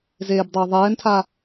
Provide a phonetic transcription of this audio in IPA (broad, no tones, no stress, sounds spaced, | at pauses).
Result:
z eː b dˤ ɪː ðˤ ɛː n tʰ a